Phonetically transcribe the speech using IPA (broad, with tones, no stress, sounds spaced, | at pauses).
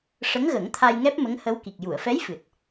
ʂ ə˧˥ ŋ ɣ ə˨˩˦ ŋ t̪ʰ a˧ j ŋ ɛ˦˥ p̚ m ə˧˥ ŋ h ə˧˥ w k i˨˩ k̚ j u˨˩˨ ə̯ f ɛ˧˥ j f ɨ˨˩ t̚